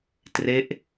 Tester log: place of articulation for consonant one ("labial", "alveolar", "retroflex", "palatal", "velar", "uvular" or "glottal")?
alveolar